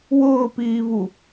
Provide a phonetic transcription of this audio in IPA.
wʊːpiːvu

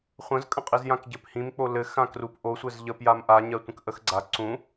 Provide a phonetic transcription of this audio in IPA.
χʷə̃zkʼə̃qʼiz jãkɟɘphĩmk͡po lɘ xãkrup ʔosʷɘz ʎəpjam ʔa ɲɜtʷə̃kʔəxɡ͡ǀa ǀũ

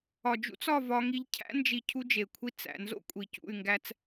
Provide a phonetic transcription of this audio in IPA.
ɒ˨d͡ʒṵ˦t͡s ɒ˦˨ vɒ˦ŋi˦ʎ cʰæ̰˦nd͡ʒi˨ cʰu˦d͡ʒe˨kʷʰi˦ t͡sæ̰˨nzo̰˦ kʷʼi˨cṵ˦˨y̯ŋɡæ˦t͡s

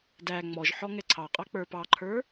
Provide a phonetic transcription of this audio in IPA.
dæ ŋ͡mɔʒħɔ ŋɛǀʰɑqʼɑ k͡pə˞pɑǃʰə˞

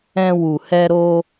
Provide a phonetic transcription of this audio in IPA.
ɛ̃˧wu˨ hɛ˧ɾo˧

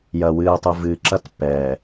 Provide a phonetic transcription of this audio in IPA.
jɐ˨wɨː˨tˤɨ˨ vɨː˨ǁɐ˦t pːɛː˨

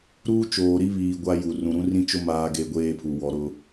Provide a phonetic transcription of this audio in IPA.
ɾuː˦t͡ʃoː˨ɾi˦βiː˨ ɡʷa˦ju˨ rũ˨ɾũ˦ rĩ˦t͡ʃo˦ maː˦ɡe˦ɡʷeː˦pʰu˨ wɔ˨ɾʊ˦

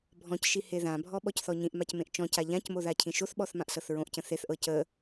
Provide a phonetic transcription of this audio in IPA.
bʱɔ̃cʃi heðãbʱɔ ɓɔcθɔɲĩʔmac mẽʔt͡ʃɔ̃ca ʎãcmo ðacʰĩʃoθɓɔθ mãʔsɤθɹõʔcə̃ θeθʔɤ cə

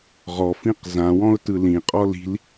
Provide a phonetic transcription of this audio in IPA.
ʁɔfĩq zãwɔ̃ʊ̯tɯ lĩqʼɔ li̤l

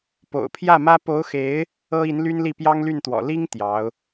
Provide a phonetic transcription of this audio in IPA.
po̰˨˩ʊ̯pʰjä˥˩mä˥ po˧˥ʊ̯xe˧˥ɪ̯ | ɤ˥i˧˥nly˥nli˥˩ pjɑ˥ŋly˥˩nt̪wɔ̰˨˩ li˥ŋ t̪jɑ˧˥ʊ̯

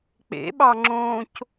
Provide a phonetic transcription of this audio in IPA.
k͡pḛɓɑŋ͡ǁõːc

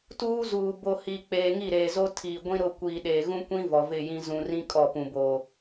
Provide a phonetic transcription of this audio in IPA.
tuː˦zuː˨ bo˨ hi˨k͡peː˨ ŋi˦˨ɾeː˨zo˦ tʰiː˨ɡʷĩ˦ ɾʊ˦˨kʷiː˨ ɗeː˨ɣũ˦kʷĩ˦ vɔ˨ vɪ˦˨jĩ˦ zũ˨rĩ˦ kʼɔ˦˨ pũ˨boː˨

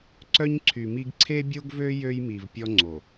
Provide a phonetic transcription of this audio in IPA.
ǀœ˦ɲǀʰy˨mi˦ɡ ǀʰe˦bʲo˦ɡvø˦ jø˦jmi˨v pʲɔ˦ŋ͡ǀo˨

